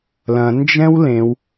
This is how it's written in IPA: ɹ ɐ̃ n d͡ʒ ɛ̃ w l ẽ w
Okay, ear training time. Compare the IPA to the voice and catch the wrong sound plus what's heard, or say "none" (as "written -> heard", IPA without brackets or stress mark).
ɹ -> l